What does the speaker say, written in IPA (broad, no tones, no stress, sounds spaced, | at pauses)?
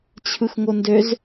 t͡ɕʰ ɯ x ŋ o n d ø z